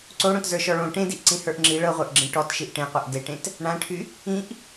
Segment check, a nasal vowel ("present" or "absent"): present